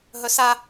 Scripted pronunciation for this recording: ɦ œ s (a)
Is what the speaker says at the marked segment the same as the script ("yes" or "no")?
yes